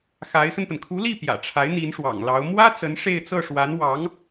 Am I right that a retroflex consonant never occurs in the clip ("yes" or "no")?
no